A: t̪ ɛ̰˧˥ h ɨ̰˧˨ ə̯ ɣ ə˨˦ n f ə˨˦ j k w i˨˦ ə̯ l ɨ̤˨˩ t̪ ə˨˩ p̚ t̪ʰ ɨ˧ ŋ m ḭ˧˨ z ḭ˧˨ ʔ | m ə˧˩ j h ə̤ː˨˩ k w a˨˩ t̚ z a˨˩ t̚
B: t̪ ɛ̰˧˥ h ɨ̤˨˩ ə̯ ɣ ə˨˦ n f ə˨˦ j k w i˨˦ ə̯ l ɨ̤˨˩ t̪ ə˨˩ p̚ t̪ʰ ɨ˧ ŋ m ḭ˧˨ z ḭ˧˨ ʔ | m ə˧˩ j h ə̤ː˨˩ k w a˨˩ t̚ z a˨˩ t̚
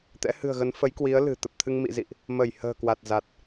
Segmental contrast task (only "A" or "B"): B